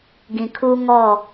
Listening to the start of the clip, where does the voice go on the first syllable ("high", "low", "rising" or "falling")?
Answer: low